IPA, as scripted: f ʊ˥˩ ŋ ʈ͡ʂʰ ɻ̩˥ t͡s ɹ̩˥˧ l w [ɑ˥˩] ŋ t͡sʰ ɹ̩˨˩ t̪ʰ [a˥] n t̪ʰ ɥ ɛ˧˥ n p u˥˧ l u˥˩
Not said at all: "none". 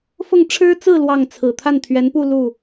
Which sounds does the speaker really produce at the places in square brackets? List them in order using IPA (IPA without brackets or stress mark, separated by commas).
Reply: ɑ˥˩, a˥˩